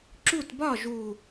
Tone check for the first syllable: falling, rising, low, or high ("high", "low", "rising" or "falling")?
falling